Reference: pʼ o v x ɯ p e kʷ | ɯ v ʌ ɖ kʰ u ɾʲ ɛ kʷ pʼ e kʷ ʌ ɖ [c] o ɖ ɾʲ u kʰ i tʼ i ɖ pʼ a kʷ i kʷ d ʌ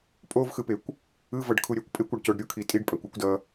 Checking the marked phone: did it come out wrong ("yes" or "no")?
no